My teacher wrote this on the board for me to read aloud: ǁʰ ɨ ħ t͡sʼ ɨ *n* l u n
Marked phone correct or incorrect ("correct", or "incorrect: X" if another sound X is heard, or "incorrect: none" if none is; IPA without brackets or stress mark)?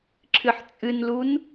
correct